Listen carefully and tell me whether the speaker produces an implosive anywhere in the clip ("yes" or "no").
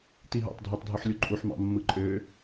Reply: no